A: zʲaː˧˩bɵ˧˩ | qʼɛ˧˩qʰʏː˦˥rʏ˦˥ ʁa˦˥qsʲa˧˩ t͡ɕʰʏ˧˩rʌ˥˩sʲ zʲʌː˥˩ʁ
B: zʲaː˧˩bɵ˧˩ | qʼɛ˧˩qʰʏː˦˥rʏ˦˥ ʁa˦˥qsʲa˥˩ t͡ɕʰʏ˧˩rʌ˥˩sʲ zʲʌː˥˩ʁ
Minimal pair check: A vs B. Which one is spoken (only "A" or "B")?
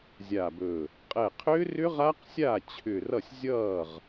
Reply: B